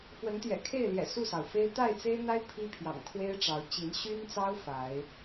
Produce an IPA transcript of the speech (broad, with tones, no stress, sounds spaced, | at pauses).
f w ə˨˦ n t̪ j ɛ̰˨˩ kʰ e˥˨ ɪ̯ l j ɛ̰˨˩ s u˥˨ s ɑ˩ ʊ̯ f e˦ ɪ̯ t̪ a˥˨ ɪ̯ t͡s e˦ ɪ̯ n̪ a˦ ɪ̯ pʰ i˦ pʰ j ɑ̰˨˩ ŋ kʰ w e˦ ɪ̯ ʈ͡ʂ ɑ˨˦ ʊ̯ t͡ɕ i˨˦ n ɕ y˦ n t͡s ɑ˦ ʊ̯ f a˨˦ ɪ̯